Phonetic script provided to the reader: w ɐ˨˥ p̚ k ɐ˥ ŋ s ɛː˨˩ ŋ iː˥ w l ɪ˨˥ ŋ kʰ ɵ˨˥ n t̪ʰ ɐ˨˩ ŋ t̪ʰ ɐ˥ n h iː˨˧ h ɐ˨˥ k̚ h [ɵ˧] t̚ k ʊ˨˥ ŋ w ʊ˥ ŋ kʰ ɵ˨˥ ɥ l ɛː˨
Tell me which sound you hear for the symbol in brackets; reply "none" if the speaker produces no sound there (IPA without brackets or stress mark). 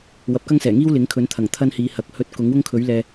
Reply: ɵ˧